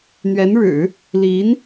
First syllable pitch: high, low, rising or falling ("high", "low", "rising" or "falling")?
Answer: rising